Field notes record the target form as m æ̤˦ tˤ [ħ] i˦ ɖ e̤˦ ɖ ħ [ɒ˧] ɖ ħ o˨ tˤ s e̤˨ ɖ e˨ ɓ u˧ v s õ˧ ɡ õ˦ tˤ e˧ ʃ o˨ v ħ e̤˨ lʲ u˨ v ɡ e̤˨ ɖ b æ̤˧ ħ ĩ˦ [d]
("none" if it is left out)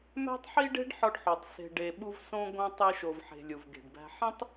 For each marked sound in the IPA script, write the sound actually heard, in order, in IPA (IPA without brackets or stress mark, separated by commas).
ħ, ɒ˧, tˤ